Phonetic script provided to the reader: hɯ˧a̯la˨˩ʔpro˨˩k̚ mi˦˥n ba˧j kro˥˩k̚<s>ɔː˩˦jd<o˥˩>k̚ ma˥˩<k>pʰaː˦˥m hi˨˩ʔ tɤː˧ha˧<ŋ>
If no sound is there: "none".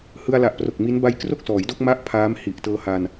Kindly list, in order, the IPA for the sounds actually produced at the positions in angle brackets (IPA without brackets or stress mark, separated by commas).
s, o˥˩, ʔ, n